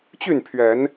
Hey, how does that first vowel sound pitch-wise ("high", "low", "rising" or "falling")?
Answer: falling